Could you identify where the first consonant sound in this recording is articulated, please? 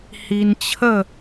glottal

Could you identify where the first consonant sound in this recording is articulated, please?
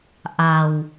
glottal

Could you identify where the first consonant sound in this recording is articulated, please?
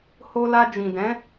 glottal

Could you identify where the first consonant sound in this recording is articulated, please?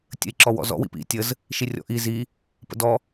alveolar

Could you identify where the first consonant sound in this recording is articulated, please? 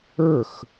velar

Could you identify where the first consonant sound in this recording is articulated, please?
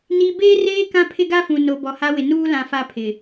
alveolar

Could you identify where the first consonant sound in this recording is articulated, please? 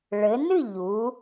retroflex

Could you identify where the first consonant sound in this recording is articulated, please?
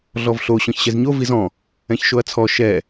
alveolar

